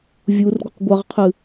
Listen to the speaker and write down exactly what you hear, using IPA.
vʲ u r ɡʷ ɘ q ɡʷ a ʁ qʰ ɨ

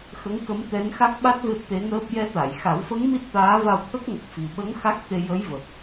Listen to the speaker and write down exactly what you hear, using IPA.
x ə˧˥ ŋ k ə˧˥ m t̪ ɛ˧˥ n x a˦˥ k̚ ɓ a˦˥ t̚ v e˦˥ p̚ t̪ e˧˥ ŋ əː˦˥ p̚ j ɛ˧˥ t̪ a˨˩˨ j x a˨˩˦ w f ə˧˥ ŋ m i˦˥ t̚ t̪ aː˧˥ v a˧ w t̪ʰ ə˦˥ k̚ ŋ ə˨˩ k̚ f i˨˩ ɓ ə˧˥ ŋ x a˦˥ k̚ t̪ e˧ j ə˧˥ j v ə˨˩ k̚

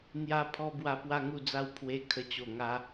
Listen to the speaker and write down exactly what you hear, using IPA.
n̪ j a˦ pʰ ɔ˦ b w a˥˧ p w a˦ ŋ u˥˧ d͡z a˥˧ w pʰ w e˧ kʰ ə˧ t͡ɕ o˨˩ ŋ a˧

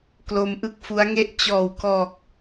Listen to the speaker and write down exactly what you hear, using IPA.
k l o˧ m ʔ ɯ˥˩ k̚ f u˦˥ a̯ ŋ e˥˩ ʔ t͡ɕ ɔː˨˩ w k ɔː˨˩ k̚

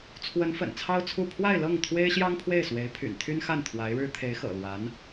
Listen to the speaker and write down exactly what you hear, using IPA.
t͡sʰ w ə˧˥ n f ə̰˨˩ n t͡sʰ ɑ˥ ʊ̯ t͡sʰ u˥˧ pʰ w a˥˧ ɪ̯ l ɤ˥˩ ŋ t̪ʰ w e˥ ɪ̯ ɕ j ɑ˥ ŋ pʰ w e˥˩ ɪ̯ s w e˧˥ ɪ̯ pʰ y̰˨˩ n t̪ʰ y˥ n x a˥˩ n t̪ʰ w a˧˥ ɪ̯ ɻ ɻ̩˥ t̪ʰ e˧˥ ɪ̯ x ɤ̰˨˩ l w a˧˥ n

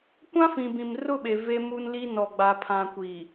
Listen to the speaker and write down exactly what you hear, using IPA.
kʷ ã˦ f ĩ˨ b ĩ˨ m r ʊ˦˨ ɓ e˨ v e˦ m u˦ n l i˦ n ɔ˨ ɡ͡b a˨ pʰ ã˨ kʷ i˨

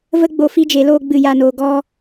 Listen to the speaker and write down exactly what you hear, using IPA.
v ə˦ ɡ͡b o˧ f i˦ d͡ʒ e˨˦ l oː˦ ɡ͡b ɨ˦˨ j a˧ n oː˧ ɡ ɔ˦

